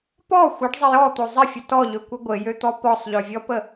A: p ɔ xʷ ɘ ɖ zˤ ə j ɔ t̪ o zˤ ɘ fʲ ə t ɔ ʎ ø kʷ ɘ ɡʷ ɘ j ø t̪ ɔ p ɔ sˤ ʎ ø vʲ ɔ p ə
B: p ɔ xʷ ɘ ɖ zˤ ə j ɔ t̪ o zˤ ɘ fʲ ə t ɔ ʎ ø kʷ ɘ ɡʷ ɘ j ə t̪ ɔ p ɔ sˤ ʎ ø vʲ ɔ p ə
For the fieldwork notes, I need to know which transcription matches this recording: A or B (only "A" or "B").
A